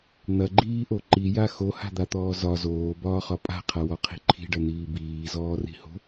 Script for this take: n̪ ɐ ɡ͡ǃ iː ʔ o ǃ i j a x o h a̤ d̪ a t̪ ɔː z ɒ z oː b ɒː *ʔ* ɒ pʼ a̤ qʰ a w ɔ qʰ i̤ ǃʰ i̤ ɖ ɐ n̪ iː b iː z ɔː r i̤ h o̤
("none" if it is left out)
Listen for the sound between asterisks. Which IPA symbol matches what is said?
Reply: χ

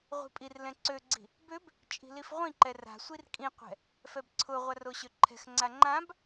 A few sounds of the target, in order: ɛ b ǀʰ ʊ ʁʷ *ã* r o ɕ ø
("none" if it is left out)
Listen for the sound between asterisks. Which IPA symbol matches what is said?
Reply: a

